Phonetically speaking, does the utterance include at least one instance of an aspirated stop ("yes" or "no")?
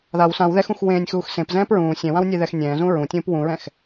no